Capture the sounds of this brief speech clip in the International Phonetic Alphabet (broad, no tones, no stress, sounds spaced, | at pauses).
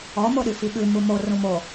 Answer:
ɔ m o ɗ y f i ɠ ʉ m u m o r ũ m o